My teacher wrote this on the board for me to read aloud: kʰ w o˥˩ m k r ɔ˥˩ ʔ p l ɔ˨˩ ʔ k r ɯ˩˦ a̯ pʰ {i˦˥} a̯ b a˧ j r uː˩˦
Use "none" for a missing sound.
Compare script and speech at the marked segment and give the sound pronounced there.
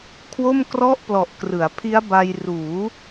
i˦˥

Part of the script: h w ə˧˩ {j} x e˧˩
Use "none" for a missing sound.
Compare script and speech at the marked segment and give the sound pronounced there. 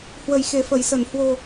j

